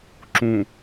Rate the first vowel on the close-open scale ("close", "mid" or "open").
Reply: close